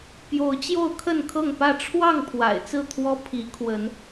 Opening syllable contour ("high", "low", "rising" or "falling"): rising